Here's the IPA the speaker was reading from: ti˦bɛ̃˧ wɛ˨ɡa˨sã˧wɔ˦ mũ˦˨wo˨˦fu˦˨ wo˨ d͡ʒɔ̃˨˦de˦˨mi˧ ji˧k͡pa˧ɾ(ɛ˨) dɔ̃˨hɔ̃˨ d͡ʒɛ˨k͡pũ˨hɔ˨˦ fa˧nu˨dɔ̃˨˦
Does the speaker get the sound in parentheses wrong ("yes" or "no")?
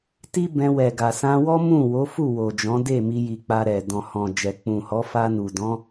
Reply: no